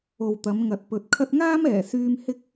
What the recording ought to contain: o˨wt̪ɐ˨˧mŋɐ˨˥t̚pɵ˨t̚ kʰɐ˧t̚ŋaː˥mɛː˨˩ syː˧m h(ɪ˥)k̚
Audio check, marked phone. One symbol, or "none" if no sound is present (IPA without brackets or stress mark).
ɪ˥